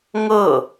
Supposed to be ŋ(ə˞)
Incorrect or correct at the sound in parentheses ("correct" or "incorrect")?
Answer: incorrect